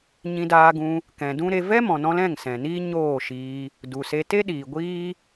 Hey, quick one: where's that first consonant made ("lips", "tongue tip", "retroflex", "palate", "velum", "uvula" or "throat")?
palate